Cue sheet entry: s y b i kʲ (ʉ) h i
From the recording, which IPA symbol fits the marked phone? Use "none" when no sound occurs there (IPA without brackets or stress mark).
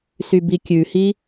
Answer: ʉ